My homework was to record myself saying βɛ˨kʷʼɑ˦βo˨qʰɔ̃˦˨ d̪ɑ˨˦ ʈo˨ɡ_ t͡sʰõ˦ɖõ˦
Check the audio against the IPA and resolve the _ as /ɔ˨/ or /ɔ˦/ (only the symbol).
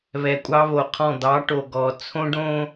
ɔ˨